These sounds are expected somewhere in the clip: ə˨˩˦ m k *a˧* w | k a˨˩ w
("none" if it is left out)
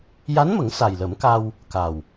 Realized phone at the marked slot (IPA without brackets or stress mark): a˧